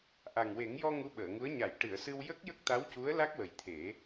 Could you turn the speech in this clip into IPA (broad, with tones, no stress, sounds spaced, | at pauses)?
ʔ a˨˩ ŋ w e˨˩˦ ŋ j ɔ˧ ŋ u˧˥ ɓ əː˨˩˨ ŋ u˧˥ ə̯ ɲ a˨˩˨ j ʈ ɨ˨˩˨ ə̯ s ɨ˧ w j ə˦˥ k̚ j ə˦˥ k̚ t̪ a˧˥ w c u˧˥ ə̯ l a˦˥ k̚ w ə˨˩ j t̪ʰ e˨˩˦